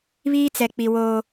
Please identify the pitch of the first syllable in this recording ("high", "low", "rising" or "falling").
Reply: high